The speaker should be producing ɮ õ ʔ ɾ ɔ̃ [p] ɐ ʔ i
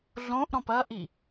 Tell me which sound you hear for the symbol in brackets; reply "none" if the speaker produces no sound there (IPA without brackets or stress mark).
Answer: p